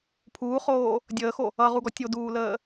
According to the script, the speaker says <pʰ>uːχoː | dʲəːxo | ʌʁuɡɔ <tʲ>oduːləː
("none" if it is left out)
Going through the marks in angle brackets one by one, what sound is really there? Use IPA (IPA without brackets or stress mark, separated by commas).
pʰ, tʲ